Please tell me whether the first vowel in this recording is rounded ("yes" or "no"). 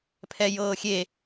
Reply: no